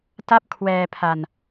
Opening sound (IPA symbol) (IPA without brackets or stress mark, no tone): t